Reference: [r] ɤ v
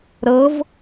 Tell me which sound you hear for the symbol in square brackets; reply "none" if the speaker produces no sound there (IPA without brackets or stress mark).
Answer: ɾ